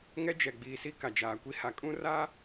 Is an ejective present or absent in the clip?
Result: present